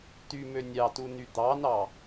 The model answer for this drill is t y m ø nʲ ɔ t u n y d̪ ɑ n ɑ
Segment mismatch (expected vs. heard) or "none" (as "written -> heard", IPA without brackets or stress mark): ɔ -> ɑ